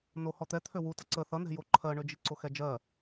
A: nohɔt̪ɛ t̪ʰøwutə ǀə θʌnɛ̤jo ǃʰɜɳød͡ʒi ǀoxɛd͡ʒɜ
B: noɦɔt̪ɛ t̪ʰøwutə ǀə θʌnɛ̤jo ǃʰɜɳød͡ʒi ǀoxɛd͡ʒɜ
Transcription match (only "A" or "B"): A